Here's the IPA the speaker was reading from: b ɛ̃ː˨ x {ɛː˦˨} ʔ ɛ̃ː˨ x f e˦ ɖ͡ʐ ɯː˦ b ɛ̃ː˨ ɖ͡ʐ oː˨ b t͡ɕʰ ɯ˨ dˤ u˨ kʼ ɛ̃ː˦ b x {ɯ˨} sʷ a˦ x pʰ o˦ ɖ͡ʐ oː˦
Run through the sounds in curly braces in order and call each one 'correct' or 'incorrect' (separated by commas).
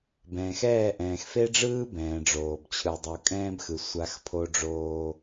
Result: correct, correct